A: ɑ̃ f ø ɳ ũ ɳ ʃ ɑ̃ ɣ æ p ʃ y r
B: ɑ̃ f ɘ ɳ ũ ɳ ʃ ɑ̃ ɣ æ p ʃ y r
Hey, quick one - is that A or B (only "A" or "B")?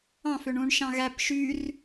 A